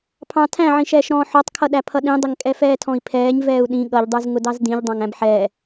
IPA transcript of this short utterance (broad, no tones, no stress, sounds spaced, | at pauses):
pʰ ɑ̃ tʰ æ̃ ʕ ĩ ʃ ɛː ʃ ɾ ɔ̃ː ħ ɔ tˤ kʰ ʌ ɗ æ pʰ ʌ ɗ ĩ dˤ ə ŋ kʼ ɛ f ɛː tʰ ɔ̃ i̯ pʰ ɛː ɲ v ɛː u̯ ɗ ĩ ɠ ʌ ʎ dˤ ə˞ z ŋ ʊ d ɑ z d ĩ ʎ dˤ ɑ̃ ŋ æ̃ b ħ ɛː